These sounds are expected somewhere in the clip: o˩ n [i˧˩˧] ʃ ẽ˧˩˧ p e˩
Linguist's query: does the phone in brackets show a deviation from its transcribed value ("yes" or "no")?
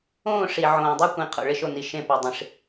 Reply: yes